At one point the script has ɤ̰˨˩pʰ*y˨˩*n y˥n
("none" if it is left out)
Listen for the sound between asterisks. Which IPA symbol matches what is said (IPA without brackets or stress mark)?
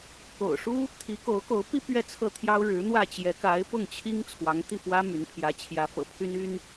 y˥